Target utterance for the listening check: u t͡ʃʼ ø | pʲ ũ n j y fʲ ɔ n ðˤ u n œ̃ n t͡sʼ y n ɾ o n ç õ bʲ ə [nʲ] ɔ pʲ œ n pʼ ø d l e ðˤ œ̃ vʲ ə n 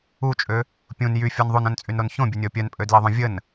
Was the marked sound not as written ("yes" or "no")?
no